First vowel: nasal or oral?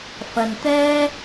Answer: oral